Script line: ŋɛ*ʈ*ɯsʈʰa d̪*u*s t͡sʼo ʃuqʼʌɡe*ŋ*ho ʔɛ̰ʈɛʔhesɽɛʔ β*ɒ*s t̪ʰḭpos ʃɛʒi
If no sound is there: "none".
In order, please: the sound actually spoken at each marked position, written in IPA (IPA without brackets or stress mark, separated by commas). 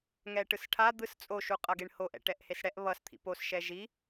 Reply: ʈ, ɯ, ɳ, ʌ